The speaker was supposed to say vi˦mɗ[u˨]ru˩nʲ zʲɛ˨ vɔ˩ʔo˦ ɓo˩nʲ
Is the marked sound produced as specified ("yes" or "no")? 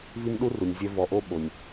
no